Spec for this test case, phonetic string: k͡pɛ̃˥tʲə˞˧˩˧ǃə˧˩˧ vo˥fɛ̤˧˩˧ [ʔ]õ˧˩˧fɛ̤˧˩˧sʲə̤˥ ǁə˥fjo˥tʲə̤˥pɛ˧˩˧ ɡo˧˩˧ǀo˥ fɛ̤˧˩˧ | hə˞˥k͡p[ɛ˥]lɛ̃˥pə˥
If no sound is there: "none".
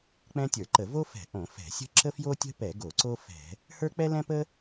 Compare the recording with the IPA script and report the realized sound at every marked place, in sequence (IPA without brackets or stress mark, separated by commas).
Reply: ʔ, ɛ˥